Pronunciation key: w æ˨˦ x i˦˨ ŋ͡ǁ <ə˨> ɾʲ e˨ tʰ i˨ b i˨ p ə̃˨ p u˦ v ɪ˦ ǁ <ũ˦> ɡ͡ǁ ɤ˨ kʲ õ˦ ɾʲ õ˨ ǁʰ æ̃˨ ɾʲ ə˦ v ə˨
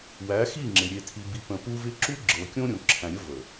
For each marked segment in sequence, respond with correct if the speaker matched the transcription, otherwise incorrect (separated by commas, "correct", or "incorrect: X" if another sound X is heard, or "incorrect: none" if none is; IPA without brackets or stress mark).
incorrect: ɪ˨, incorrect: u˦